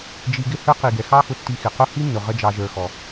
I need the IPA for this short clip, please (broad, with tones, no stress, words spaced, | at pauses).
d͡ʒi˧ɡɪ˦hə˞˦ qi˨ɡɛ˨xɑ˦xʊ˧ tːi˧xɪ˨qʊ˦ hi˦nːʊ˨ ʁə˦d͡ʒɑ˧ʒə˞˧xɔ˧